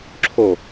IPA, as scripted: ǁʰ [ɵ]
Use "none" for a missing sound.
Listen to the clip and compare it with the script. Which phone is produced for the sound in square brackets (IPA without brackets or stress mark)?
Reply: o